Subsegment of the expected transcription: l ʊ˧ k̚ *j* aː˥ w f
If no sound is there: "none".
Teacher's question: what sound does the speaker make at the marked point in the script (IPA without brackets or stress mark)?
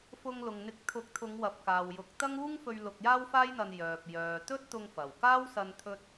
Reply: j